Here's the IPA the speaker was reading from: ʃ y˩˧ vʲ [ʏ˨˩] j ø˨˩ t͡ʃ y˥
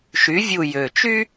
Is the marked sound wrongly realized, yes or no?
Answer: yes